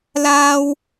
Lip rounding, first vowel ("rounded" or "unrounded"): unrounded